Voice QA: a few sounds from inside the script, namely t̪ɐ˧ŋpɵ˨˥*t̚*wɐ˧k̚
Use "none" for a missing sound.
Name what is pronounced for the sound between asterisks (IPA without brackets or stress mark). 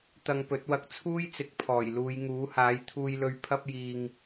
t̚